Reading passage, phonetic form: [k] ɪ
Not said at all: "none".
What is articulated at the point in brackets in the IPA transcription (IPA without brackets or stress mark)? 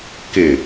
k